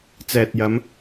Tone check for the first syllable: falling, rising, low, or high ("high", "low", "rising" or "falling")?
low